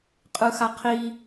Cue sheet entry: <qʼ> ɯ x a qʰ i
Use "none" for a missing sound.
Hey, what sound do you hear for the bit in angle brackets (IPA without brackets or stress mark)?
qʼ